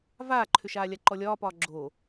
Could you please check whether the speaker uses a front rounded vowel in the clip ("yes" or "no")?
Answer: yes